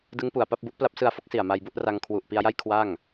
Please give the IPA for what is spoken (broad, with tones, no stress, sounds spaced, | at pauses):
d ɯ˦˥ ŋ p u˨˩ a̯ p a˥˩ p̚ b u˦˥ ʔ p l a˦˥ p̚ s ɯ˧ a̯ f o˦˥ k̚ s i˨˩ a̯ m a˧ j b u˥˩ ʔ r a˧ ŋ kʰ w u˨˩ ʔ p i˧ a̯ j a˥˩ j kʰ w a˥˩ ŋ